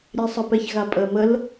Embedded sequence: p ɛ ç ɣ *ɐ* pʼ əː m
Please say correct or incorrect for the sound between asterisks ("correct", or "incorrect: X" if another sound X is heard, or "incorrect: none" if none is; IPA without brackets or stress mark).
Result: incorrect: a